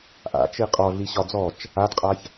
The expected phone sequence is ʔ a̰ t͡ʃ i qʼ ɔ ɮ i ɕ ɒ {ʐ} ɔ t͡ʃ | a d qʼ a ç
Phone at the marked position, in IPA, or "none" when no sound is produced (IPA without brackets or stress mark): d͡z